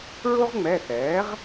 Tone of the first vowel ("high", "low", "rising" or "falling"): high